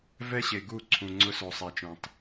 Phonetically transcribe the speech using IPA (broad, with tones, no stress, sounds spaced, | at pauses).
v ɛ˦ ɕ e˨ ɡ u˦˨ ǀʰ ũ˨ ŋ͡ǀ ʊ˦ s o˨ sˤ ɛ˨ t͡ʃ ũ˨ tˤ